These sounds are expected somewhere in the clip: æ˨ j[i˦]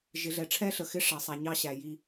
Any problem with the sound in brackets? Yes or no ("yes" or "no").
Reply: no